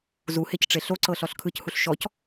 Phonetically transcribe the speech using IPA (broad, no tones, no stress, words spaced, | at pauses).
zuhecʈ͡ʂe ɬoǀɤɬɔɬ kʰɯchuɬ ʃɔc